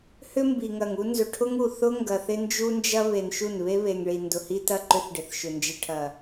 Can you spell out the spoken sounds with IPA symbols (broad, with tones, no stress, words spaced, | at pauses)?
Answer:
hʏ˦mbi˨ŋɐ˨ŋu˦ nzʏ˨ʈʰʊ˦ŋ u˨ θʊ˦ ŋɡɐ˨θ ɪ˦nd͡ʒu˦nd͡ʒɐ˦ βe˨nʃu˦˨n βe˦βe˨ŋɭi˨ ndʊ˨hi˦tɐ˦˨ ǃʏ˦θɖɪ˨θʃʏ˨ nd͡ʒɪ˨ʈʰɐ˨